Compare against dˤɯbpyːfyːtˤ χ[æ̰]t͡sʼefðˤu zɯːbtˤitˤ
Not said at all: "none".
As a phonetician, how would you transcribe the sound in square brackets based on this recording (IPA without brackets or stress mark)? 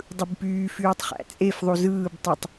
æ̰